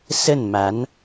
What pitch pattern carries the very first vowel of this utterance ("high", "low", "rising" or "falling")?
falling